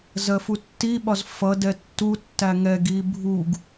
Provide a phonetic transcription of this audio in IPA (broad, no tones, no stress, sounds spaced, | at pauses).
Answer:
z ɜ f u tː i ɓ ɒ z f ʌ d ɛ tː u tː æ ŋ ɛ ɡ i bʱ u ɡ